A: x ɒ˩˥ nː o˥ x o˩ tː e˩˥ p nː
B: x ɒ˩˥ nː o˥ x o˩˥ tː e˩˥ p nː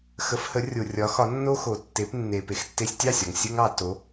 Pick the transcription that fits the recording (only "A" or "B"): A